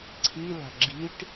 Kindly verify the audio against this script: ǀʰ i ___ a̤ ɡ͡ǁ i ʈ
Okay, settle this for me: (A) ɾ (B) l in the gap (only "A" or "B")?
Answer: B